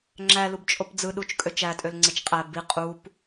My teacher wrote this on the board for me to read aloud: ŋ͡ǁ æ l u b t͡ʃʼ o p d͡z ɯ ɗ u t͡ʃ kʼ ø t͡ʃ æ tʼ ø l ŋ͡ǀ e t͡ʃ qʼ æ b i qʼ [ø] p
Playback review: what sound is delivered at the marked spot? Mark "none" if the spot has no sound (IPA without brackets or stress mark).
u